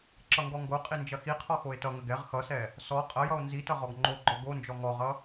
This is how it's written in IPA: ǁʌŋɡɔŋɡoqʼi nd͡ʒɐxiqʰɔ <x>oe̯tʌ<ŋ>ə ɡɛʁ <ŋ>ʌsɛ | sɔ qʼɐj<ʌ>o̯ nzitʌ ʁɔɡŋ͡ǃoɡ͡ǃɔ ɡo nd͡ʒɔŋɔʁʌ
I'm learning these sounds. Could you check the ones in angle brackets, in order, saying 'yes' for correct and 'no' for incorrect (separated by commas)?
yes, yes, no, yes